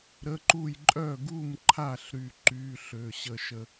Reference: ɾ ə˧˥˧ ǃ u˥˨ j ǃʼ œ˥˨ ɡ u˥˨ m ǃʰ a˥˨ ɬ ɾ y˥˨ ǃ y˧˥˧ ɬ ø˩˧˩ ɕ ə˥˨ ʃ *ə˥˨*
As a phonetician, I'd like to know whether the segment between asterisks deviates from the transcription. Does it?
no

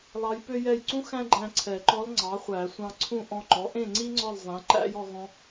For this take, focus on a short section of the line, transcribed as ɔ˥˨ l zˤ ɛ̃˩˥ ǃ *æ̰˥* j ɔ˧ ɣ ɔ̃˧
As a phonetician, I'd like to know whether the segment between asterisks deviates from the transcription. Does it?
no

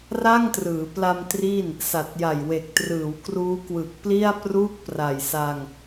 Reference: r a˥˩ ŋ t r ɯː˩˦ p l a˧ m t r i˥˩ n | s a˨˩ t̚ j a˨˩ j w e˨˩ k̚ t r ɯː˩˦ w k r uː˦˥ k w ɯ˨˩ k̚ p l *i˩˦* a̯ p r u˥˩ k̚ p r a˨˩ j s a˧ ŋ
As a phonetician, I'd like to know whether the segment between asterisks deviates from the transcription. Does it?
yes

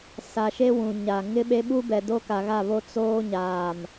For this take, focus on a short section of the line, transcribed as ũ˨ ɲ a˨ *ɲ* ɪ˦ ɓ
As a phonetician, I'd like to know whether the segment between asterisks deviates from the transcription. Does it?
yes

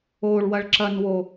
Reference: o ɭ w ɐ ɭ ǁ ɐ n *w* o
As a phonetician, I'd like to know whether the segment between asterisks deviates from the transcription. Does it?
no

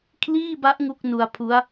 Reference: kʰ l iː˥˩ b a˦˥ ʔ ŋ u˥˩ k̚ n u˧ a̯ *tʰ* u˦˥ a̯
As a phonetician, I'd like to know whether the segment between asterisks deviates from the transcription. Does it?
yes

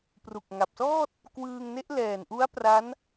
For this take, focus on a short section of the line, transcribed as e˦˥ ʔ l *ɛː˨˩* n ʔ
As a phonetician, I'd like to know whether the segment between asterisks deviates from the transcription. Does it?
no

